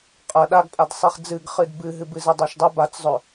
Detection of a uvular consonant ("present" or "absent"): present